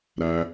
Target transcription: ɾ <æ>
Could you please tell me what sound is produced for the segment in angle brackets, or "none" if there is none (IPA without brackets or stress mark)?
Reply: æ